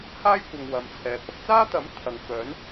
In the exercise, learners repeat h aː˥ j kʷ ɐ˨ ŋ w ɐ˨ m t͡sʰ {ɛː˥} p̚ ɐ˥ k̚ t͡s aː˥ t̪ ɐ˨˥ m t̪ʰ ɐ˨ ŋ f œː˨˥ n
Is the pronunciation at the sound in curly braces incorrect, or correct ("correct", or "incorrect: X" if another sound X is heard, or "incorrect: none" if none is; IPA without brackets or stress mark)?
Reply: incorrect: ɛː˨